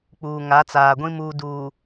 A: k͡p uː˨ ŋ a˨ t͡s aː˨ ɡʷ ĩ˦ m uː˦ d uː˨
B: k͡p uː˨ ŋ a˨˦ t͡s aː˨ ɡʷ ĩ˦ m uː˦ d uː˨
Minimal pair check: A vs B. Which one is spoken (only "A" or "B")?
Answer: B